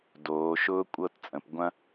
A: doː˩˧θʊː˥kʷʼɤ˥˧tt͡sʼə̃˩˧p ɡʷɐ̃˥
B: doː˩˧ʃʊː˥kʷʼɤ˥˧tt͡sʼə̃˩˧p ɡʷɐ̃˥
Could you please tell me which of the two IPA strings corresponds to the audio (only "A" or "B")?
B